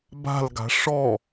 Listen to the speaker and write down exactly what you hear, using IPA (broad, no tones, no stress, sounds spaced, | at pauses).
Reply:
b a̤ l ɡ a̤ ʂ ɔ